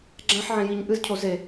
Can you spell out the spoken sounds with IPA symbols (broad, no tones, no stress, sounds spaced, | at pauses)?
ɡ͡ǁ ã ħ ʕ ẽ j i ɲ ʔ ɨ z cʰ o z e